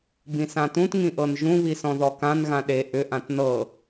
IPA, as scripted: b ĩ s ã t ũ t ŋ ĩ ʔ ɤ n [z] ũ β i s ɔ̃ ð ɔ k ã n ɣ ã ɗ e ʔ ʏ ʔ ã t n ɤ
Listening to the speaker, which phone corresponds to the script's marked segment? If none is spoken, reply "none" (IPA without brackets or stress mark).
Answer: ʒ